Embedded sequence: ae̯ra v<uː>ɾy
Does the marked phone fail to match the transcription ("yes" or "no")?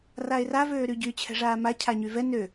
yes